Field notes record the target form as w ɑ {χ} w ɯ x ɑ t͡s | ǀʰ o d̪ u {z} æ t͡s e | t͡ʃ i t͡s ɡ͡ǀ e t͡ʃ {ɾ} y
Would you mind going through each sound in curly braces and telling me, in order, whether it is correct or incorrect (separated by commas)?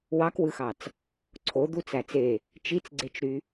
incorrect, incorrect, correct